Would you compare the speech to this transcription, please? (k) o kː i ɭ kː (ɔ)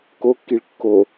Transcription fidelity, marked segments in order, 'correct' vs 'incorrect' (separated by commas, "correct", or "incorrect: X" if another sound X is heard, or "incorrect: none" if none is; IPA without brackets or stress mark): correct, incorrect: o